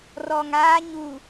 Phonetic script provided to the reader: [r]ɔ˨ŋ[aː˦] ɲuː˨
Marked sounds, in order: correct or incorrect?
correct, correct

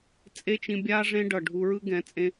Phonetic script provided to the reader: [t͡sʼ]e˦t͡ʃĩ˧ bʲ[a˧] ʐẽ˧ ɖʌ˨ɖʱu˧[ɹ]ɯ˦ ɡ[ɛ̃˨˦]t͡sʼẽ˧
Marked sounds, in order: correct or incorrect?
correct, correct, correct, correct

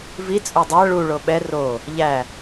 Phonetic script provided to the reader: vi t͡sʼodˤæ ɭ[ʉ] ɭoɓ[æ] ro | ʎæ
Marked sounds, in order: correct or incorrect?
incorrect: u, incorrect: ɛ

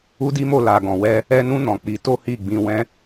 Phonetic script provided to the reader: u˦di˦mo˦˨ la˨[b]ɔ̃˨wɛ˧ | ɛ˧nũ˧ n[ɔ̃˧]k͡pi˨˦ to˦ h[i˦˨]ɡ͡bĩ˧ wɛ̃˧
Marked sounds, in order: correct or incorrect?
incorrect: ɡ, incorrect: ɔ̃˨, correct

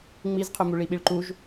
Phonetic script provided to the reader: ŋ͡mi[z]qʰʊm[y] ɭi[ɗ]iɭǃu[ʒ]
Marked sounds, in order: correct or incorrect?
correct, incorrect: u, incorrect: ɓ, correct

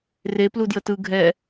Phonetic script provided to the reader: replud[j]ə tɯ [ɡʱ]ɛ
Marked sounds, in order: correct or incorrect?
correct, correct

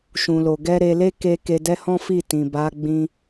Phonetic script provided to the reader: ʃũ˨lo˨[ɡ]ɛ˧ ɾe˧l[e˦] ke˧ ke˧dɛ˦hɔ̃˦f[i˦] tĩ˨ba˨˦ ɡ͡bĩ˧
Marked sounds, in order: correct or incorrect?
correct, correct, incorrect: i˦˨

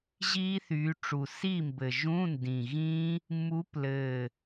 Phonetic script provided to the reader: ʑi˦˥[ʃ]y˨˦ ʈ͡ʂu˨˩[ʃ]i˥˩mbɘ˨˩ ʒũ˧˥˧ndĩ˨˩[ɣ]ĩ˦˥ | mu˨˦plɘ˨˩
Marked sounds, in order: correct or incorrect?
incorrect: θ, incorrect: s, correct

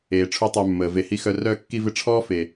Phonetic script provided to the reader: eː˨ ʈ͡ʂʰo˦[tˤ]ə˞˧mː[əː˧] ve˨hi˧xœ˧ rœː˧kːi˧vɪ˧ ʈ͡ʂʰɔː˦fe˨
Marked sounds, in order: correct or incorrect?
correct, incorrect: əː˨

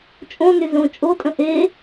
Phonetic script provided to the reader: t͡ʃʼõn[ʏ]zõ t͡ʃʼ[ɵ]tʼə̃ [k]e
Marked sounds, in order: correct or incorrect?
correct, incorrect: o, incorrect: ʔ

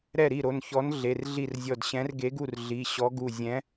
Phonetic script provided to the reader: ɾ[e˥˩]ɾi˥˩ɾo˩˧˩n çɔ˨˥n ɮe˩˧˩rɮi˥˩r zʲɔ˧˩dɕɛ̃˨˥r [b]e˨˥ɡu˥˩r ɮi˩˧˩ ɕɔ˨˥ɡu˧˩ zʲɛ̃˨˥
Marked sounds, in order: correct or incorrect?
incorrect: ɛ˥˩, incorrect: ɡ

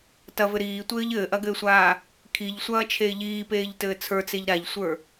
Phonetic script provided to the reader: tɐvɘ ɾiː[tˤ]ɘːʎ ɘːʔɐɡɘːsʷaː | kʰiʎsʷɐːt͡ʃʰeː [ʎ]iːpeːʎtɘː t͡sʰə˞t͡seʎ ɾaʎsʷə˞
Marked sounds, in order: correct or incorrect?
incorrect: tʷ, correct

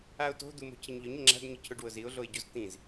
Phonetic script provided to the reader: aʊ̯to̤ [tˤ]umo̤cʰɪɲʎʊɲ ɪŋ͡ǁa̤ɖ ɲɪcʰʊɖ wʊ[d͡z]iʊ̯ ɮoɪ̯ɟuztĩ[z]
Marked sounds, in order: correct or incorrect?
incorrect: d̪, incorrect: z, correct

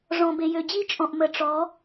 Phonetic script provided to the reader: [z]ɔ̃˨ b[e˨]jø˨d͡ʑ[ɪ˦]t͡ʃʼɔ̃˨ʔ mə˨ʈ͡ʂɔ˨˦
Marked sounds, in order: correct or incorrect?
incorrect: ʐ, correct, incorrect: i˦

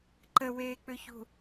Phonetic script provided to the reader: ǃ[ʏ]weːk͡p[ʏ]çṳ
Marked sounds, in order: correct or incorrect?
incorrect: ə, correct

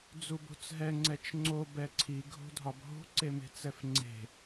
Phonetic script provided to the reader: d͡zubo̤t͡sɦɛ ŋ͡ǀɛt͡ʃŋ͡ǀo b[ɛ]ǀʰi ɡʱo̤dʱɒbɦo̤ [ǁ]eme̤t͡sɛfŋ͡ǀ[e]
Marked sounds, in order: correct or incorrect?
correct, incorrect: ǀ, incorrect: e̤

